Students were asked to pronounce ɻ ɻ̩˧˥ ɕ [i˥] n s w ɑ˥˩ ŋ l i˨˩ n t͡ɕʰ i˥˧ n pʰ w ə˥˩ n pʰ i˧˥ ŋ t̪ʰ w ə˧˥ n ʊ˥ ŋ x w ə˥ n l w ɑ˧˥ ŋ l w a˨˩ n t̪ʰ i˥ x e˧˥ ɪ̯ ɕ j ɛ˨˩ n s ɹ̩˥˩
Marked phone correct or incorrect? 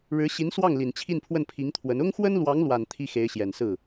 incorrect